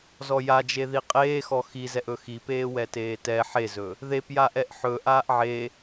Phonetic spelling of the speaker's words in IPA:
zɔjad͡ʒe ðiqʼeːxɔ xizɛʔ ɵxipeː wɛteːtɛ ħezɵ | ðepjaʔɛʔ ħɵ ʔaːʔʕe

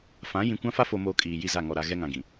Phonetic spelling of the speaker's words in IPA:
fã˨˦ jĩ˨kʷã˦fa˦ fo˨moː˨ kʼiː˨ji˦˨za˦˨ ŋɔ˨ɾa˨ ɣɛ˦ŋã˨ɡĩ˨

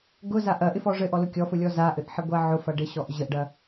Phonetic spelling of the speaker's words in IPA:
ɡʊza ʔɐʔɪfɔ ʐɘʔɔlʊ kʲɔfʊlʲɔ zaʔɘʔħɪ ɡʷaʕʊfɐ ɖɪɕɔʔ ʑəʔɖɐ

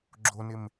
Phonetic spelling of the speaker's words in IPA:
ɡ͡ǁonɪm

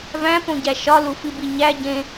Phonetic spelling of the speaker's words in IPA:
væ̃põɟæ ʃɒlufibi ɲæ ɟẽ

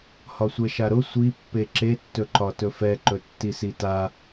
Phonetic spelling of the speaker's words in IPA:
hɒsʷɛʃaɾʊ sʷipːe ǁetːɵǃɒ tɵfɛǃɵ tːisita

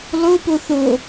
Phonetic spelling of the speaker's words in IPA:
lˠopo θo

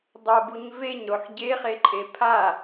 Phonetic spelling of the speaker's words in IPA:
dˤobuɲ veɲɾoħ ɟeχeǃʼe pʰa

